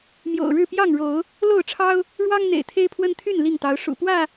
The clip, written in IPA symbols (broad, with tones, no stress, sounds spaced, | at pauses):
m j o̰˨˩ ʊ̯ ɻ ɻ̩˥˨ p j ɑ˥˨ ŋ ɻ o˨˦ ʊ̯ | l o˥˨ ʊ̯ ʈ͡ʂʰ ɑ˦ ʊ̯ | ɻ w ɑ˦ ŋ n̪ ḛ˨˩ ɪ̯ t̪ʰ e˦ ɪ̯ pʰ w ə˦ n t̪ʰ y˥˨ n l i˥˨ ŋ t̪ ɑ˨˦ ʊ̯ ʂ ṵ˨˩ p w ä˥˨